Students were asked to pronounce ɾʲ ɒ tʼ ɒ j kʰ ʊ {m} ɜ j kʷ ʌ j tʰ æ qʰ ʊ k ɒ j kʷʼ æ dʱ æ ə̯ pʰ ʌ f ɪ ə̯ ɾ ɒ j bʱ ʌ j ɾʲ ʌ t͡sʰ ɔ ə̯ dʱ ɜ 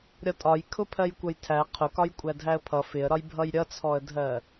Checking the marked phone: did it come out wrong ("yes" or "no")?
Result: yes